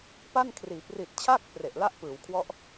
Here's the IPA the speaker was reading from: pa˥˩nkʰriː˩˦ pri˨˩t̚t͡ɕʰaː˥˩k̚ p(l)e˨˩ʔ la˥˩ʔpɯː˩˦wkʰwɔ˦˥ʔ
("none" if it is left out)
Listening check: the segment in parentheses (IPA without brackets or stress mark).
r